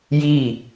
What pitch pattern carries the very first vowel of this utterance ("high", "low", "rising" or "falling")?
falling